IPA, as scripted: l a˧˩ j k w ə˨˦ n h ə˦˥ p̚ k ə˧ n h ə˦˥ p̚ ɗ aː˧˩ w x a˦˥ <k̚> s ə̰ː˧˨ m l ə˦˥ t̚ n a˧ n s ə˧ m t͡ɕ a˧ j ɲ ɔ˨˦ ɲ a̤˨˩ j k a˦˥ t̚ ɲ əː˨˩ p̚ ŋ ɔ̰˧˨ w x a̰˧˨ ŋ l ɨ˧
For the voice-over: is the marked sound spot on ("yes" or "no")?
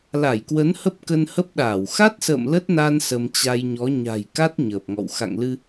no